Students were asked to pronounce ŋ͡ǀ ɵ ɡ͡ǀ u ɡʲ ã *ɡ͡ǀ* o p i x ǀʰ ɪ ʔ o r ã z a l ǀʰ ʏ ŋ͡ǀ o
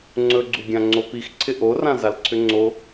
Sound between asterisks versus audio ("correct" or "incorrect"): incorrect